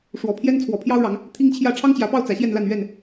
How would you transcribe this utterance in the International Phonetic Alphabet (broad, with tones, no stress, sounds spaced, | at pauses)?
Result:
ʂ w ɔ˨˦ pʰ j ɛ˦ n t͡sʰ w ɔ˨˦ pʰ j ɑ˦ ʊ̯ ɻ ɑ˨˦ ŋ | t̪ʰ i˦ ŋ t͡ɕʰ j ä˥˨ ʈ͡ʂʰ ɑ˦ ŋ t͡ɕ j ä˨˦ p ɑ˥˨ ʊ̯ t͡s ä˨˦ ɕ j ɛ˥˨ n l a˥˨ n ɥ ɛ˥˨ n